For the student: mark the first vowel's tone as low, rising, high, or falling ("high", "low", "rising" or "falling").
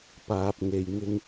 low